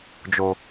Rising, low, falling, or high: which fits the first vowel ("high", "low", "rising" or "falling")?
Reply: low